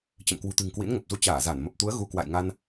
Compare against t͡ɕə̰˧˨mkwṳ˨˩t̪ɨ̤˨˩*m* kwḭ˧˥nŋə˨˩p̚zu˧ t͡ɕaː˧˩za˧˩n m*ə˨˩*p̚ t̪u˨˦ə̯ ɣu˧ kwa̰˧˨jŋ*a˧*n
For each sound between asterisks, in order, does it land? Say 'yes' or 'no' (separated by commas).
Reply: no, yes, yes